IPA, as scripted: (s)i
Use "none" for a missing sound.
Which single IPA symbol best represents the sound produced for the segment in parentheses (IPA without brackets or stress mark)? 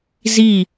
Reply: z